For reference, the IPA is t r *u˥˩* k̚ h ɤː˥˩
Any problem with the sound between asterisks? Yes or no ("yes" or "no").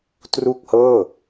no